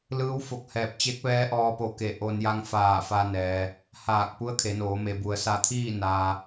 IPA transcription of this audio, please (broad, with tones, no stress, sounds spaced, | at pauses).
l ɯː˧˥ w f o˧˩ k̚ h ɛː˧˩ p̚ t͡ɕ e˧˥ k̚ ʋ ɛː˧˥ ʔ ɔː˧ p o˧˩ k e˧˩ ʔ o˧ n j a˧ ŋ f aː˧˩ f a˧ n ɛː˩ | h aː˧˩ k̚ p u˧˥ ə̯ kʰ e˩˧ n oː˩˧ m e˩ b u˩ ə̯ s a˧˩ t̪ʰ iː˥˨ n aː˧